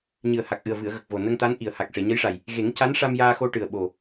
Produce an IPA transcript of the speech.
ɲ ɨ˨˩ ə̯ h a˨˩ k̚ ʔ ɨ˨˩ ə̯ v ɨ˨˩˨ ə̯ ɣ ə˨˩ k̚ v o˨˩ n ə˧ ŋ t̪ a˧˥ n ʔ i˨˩ ə̯ h a˨˩ k̚ ʂ e˨˩˨ ɲ ə˧˥ j ʂ a˨˩ j | ɣ e˨˩˦ ŋ c a˧˥ n ʂ a˧ m j aː˧ x o˧ ʈ ɨ˨˩ ə̯ ɓ o˨˩

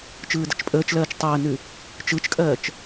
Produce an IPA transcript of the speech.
t͡ʃ ɯː d ə t͡ʃ pʼ əː t͡ʃ l ɜː t͡ʃ tˤ əː n ʉ | t͡ʃ ɯ t͡ʃ kʼ ɜː t͡ʃ

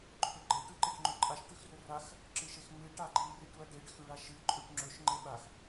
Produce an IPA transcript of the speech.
ǃʰ ɵ ɡ͡ǃ e ʈ ʉ ǃ e ʈ ŋ͡ǃ ɵ ǃʼ a ʃ ʈ ʉ x r ɵ r a x | ǁ ɨ ʃ e x ŋ͡m ɨ ʈ a ɡ͡ǃ i r i ɖ ɾ u ɐ̯ ɖ e ɖ x ʉ ɭ a ʃ ɨ ǃʼ ʉ ʈ ŋ͡ǁ ɵ ʃ ŋ͡ǃ e ɓ a x

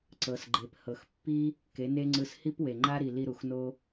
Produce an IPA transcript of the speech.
ǀ ɤ˨ s ɡ͡ǃ e˨ p h ɤ˨ x pː i˦ | k e˨˦ n e˦ ŋ͡ǀ ɯ˧ s h i˦ p w e˨ ŋ͡ǃ a˦ ɾ i˨ l i˧ ɾ u˨ x n o˦

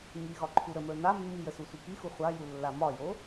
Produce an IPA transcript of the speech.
ŋ i ɣ ɒ ǃʰ u ɾ ə m ə˞ n a mː i j ə s u sʷ i k i x u χʷ a j u lː a m ɒ j o

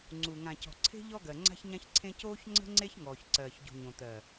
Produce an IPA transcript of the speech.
ŋ͡ǀ u˨ ŋ ã˨ c ɔ̤˨ ǀʰ e̤˦ ʎ ɔ˦ ɡ ɜ˨ ŋ͡ǀ a̤˦ ç ɲ ã˦ ç ǀʰ ẽ˦ c oː˦ ç ŋ͡ǀ ə̤˦ ŋ͡ǀ e˦ ç ŋ ɔː˨ ç ǀ ɜː˨ ç ɟ ṳ˨ ɲ õ˨ t̪ ɜ˨

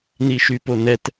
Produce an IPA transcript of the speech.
n i ʃ y p o n ɛ t

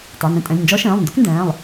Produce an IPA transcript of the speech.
tˤ e˩˧˩ n ẽ˧ tʼ ɛ̃˩˧˩ lʲ n d͡ʒ ɔ˧˥ ʃ ẽː˩˧˩ lˠ n d ʏ˧˥ k n d ɛ̃ː˩˧˩ lˠ

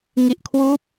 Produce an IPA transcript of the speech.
ŋ i˨˩ ʔ kʰ w uː˦˥ p̚

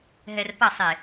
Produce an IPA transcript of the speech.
ɦ ɛ r p ɐ sˤ e

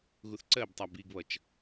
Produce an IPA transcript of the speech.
ɣ u θ ǀ ɜ b tˤ æ b i ɡ β ʌ t͡ʃ

